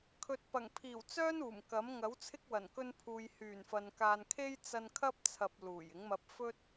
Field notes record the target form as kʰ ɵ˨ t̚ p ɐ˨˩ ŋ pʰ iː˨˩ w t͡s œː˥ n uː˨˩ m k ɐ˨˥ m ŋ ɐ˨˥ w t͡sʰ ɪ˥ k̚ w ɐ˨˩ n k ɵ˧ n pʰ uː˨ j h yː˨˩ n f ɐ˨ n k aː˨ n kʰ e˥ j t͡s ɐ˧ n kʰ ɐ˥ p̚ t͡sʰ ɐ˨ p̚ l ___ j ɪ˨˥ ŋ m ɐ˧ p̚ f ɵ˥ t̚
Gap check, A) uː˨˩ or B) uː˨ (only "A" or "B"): A